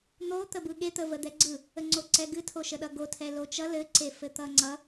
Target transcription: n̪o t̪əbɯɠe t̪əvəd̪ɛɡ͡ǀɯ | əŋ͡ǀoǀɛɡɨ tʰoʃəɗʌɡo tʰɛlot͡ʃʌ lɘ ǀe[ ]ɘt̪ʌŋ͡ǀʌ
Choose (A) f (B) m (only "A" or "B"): A